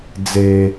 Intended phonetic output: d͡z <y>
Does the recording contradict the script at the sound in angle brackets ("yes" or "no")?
yes